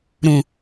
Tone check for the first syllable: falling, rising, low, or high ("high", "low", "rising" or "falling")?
low